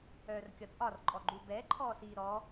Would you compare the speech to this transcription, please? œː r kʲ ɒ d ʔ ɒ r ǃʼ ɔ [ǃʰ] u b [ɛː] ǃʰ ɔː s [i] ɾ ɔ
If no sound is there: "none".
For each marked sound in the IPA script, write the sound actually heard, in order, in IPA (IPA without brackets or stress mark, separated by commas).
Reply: ɡ͡ǃ, ɛː, iː